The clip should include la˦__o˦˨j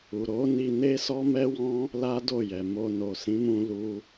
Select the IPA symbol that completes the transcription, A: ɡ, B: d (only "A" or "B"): B